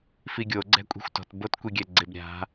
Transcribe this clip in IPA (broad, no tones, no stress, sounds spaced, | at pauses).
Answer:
f i ɡʲ o ɡ͡ǀ ɛ̤ kʷʼ i̤ xʷ t ɔ̤ t b o t kʷ i ɡʲ ɛ ɡ͡ǀ ɪ b ɾʲ a̤